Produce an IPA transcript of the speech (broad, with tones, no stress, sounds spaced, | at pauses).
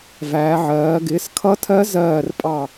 v æː˩˧ ʕ ɜː˩˧ ɡ ɪː˩˥ s kʰ ʌ˧˥ tʰ ɜ˧˥ z ɜː˧˩ r pʼ ɑ˧˩